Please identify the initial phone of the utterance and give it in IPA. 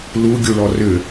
l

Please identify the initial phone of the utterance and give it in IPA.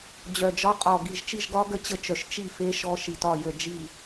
d͡ʑ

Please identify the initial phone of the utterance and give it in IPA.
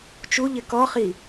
t͡ʃ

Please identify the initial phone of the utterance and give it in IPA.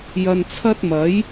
j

